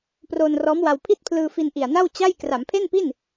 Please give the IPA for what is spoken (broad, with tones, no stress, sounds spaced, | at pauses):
p r oː˧ n r ɔː˦˥ m w a˧ w pʰ i˥˩ t̚ pʰ l ɯː˧ f i˧ n ʔ i˨˩ a̯ n a˥˩ w t͡ɕ a˥˩ j k r a˩˦ m pʰ e˥˩ n p i˥˩ n